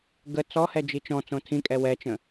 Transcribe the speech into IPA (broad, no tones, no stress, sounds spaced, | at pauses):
ɡ ə t͡s ɔ h ɛ d͡ʒ i t͡ʃ ɔ̃ t͡s õ tʰ ĩ kʼ ɛ w ɛ t͡ʃ ə̃